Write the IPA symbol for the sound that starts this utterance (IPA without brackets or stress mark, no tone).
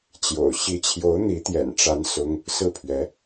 t͡ɕ